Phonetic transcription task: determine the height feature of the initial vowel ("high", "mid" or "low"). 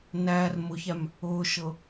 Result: low